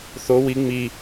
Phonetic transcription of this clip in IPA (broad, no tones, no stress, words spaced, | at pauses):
θo wi ŋ͡mi